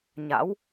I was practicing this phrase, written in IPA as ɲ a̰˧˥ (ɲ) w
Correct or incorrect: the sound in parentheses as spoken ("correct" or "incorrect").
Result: incorrect